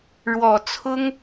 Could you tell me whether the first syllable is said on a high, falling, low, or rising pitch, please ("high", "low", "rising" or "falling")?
low